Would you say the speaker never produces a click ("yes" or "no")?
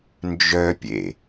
yes